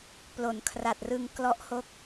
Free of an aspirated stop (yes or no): no